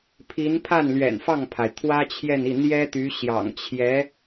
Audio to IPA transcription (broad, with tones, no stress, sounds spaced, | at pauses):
pʰ i˧˥ n pʰ a˥˩ n l ɥ ɛ̰˨˩ n f ɑ˥˩ ŋ pʰ a˩ ɪ̯ t̪ʰ w ä˥ t͡ɕʰ j ɛ˥˧ n i˥˩ n̪ j ɛ˥ t̪ y˧˥ ɕ j ɑ̰˨˩ ŋ t͡ɕʰ j ɛ˧˥